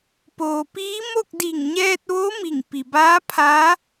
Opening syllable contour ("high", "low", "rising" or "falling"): low